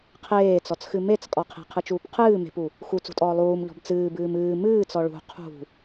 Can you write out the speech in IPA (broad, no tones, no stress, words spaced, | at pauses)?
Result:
qʰeːt͡sɔt͡sxɨ met͡skʼɔ qʰe̤qʰɨt͡ʃuːp qʰɨː me̤pu | xut͡sṳtʼɔː lˠuːmʎɔ̤b t͡sɨːbɨːm ɨː mɨːt͡sɔ ɭṳ qʰṳ